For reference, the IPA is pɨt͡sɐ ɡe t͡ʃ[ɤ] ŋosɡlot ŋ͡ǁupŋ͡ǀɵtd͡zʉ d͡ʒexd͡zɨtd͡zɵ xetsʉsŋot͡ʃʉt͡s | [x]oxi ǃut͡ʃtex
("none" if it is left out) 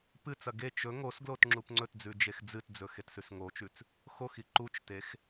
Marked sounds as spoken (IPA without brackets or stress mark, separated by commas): ɵ, x